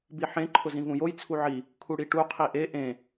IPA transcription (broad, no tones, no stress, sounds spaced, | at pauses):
b i ħ ẽ ǃʰ ʊ z ĩ v ũ j o j t͡sʰ u ʕ i | kʰ u ɽ i ʈ u qʰ i ʔ e ʔ ẽ